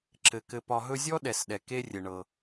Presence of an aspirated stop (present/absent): absent